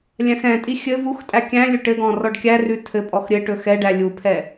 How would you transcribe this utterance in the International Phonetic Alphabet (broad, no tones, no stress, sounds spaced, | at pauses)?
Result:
lʲ æ̃ x ɛ̃ tʼ i xʲ ɘ v u x tʼ æ kʲ æ̃ lʲ ɵ ʈ ɘ ɡ ɔ̃ r ɔ ɖ kʲ æ r ʉ tʰ ɘ pʼ ɔ x ɾʲ ɘ ʈ ɵ x ɛ ɖ æ lʲ u pʰ ɛ